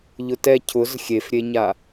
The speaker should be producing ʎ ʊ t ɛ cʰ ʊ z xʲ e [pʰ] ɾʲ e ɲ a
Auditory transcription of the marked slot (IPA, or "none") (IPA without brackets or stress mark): f